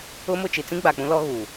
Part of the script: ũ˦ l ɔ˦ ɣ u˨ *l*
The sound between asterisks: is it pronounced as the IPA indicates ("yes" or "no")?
no